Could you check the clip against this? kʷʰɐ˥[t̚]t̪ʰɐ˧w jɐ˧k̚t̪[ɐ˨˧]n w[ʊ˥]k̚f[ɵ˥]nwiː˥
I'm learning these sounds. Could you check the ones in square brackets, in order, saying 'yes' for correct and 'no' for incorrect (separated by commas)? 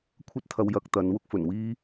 yes, yes, yes, no